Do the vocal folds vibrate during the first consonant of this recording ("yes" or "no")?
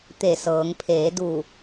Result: no